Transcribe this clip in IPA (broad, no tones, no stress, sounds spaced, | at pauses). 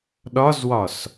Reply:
ɗ ɒ z w ɒ s